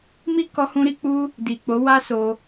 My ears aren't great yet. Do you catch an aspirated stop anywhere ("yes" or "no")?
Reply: no